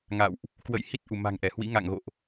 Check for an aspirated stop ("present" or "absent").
absent